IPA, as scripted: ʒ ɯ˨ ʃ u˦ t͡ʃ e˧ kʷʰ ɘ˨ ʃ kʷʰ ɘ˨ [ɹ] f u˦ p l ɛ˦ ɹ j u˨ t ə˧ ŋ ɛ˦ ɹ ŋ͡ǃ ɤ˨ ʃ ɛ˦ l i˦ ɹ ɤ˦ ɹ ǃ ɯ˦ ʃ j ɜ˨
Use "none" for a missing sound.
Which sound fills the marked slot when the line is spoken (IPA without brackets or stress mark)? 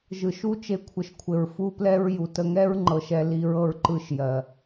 ɹ